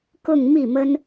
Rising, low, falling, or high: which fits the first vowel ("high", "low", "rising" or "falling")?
falling